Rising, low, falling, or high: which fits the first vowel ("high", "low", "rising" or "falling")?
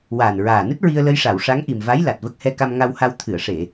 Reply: low